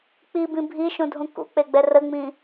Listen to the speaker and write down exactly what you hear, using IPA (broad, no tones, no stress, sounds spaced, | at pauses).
k͡p i b ĩ bʱ i ʃ ũ dʱ ũ k ṵ k͡p e ɡ͡b ɛ r ə ŋ͡m ĩ